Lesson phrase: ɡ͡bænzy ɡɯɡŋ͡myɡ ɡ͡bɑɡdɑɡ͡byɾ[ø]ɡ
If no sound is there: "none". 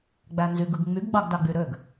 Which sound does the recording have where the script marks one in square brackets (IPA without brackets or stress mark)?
ø